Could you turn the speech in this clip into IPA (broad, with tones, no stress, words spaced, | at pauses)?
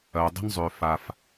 ɐː˨ dˤə̤˦nzˤʏː˨ fa˨f